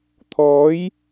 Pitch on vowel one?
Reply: rising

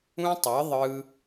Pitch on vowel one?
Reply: high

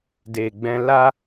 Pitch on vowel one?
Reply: low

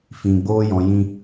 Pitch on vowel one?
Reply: low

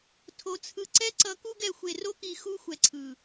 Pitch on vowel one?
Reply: low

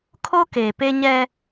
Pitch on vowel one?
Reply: high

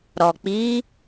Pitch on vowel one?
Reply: low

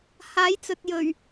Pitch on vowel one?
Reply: rising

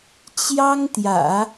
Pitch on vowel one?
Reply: high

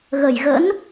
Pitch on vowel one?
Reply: low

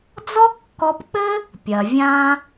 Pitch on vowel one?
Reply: high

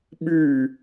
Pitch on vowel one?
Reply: falling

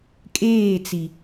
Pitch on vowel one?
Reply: falling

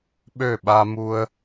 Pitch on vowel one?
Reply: falling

